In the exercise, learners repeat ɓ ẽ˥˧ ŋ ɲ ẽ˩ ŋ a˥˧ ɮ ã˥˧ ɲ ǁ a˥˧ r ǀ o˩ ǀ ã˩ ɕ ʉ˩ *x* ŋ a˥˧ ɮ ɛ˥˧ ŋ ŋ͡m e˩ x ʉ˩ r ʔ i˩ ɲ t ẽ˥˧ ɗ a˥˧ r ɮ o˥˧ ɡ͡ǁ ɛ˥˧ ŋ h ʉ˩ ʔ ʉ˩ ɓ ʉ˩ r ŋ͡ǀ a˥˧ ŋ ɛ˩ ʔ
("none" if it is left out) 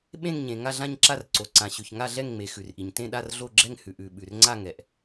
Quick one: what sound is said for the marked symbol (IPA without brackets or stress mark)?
ç